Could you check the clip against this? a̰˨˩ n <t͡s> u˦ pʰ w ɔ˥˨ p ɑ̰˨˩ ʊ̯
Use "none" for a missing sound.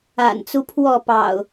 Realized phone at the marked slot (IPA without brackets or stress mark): t͡s